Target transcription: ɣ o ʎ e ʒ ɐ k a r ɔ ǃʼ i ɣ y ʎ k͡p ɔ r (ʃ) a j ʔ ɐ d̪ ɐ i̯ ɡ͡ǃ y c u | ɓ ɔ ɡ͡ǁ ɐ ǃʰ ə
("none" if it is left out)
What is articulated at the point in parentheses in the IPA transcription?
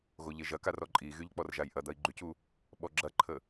ʒ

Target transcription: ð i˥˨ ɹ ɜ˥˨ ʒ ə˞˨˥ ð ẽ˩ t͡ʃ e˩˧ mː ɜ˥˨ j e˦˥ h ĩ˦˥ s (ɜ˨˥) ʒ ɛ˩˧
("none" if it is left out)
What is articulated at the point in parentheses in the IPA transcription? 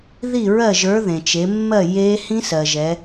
ɜ˩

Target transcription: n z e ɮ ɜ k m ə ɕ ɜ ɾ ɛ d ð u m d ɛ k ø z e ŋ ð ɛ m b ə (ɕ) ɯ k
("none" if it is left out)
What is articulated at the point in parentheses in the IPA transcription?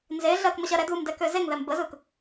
z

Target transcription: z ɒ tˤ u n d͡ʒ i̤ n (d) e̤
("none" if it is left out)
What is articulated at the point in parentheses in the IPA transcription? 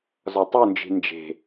d͡ʒ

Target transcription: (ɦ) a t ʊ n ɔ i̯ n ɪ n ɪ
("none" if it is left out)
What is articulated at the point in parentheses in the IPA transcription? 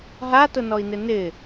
ɦ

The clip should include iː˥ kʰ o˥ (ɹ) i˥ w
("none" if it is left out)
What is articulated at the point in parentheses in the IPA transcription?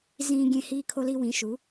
l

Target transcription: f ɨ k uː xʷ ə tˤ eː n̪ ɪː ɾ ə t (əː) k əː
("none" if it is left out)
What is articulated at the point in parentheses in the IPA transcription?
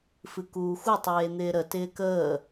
ɪː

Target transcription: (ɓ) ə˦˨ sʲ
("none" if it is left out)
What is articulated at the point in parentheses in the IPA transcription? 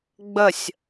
ɡ͡b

